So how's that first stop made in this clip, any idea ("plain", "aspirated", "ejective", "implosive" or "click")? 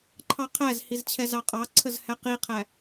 click